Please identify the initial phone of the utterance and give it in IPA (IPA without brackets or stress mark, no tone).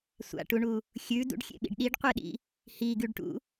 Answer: sʷ